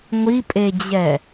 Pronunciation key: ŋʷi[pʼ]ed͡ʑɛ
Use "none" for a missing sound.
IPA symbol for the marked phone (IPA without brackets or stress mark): pʼ